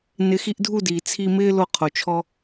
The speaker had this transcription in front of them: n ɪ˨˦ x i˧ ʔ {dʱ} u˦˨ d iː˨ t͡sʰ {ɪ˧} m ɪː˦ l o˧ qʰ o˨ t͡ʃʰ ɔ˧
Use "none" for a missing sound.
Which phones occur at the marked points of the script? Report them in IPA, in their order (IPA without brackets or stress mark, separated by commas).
dʱ, i˧